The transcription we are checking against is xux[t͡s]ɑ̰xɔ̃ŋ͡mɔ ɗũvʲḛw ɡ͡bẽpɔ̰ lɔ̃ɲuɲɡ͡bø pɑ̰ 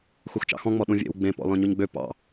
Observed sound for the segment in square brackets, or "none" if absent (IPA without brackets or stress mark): t͡ʃ